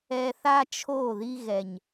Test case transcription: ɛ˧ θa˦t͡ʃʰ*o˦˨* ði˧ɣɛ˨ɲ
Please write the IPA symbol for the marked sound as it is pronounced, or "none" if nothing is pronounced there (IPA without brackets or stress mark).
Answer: o˦˨